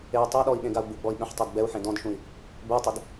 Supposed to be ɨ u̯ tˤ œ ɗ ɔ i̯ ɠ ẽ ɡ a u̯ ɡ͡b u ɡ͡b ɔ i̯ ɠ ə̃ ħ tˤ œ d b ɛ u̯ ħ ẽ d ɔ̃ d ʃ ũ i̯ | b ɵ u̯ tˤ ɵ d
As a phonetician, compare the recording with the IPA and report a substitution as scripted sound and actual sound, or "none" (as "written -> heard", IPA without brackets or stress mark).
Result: ɨ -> e